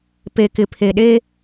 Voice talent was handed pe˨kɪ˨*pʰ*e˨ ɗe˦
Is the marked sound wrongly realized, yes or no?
no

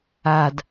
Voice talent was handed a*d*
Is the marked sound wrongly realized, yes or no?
no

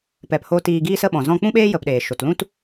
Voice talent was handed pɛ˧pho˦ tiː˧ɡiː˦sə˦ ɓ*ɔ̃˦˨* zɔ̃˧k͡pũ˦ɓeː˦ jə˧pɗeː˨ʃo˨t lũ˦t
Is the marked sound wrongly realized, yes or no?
yes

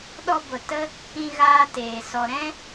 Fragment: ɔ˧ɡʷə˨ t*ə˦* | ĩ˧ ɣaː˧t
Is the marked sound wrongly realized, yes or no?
no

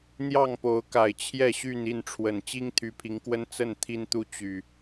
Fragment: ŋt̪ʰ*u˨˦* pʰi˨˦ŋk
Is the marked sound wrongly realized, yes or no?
yes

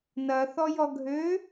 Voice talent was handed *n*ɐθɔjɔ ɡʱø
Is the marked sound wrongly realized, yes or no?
no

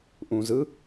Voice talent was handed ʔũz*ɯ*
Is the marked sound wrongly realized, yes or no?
no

